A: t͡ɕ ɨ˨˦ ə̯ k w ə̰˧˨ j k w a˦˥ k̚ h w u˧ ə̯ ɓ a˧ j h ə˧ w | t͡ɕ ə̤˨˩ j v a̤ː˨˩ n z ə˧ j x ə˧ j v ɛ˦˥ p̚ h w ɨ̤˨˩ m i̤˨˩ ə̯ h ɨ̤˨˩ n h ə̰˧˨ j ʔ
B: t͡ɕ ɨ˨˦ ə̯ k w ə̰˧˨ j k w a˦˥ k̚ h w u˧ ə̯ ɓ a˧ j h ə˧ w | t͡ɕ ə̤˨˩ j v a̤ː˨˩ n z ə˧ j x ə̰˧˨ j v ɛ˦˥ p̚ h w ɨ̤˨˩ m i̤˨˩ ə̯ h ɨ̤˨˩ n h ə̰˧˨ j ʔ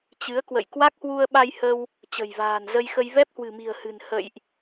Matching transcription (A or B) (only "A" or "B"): A